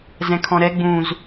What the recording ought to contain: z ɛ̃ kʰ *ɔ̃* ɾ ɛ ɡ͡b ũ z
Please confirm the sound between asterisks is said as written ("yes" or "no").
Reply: yes